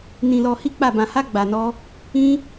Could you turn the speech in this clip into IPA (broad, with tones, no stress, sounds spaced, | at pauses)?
n ĩ˧ l ɔ˧ h i˦ k͡p a˦˨ b ã˧ h a˦ ɡ͡b a˧ n ɔ˦ | ĩ˦